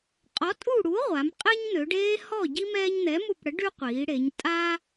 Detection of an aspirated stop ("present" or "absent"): absent